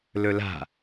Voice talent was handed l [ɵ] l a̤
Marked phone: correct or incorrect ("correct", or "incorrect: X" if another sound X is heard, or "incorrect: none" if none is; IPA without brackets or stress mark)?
correct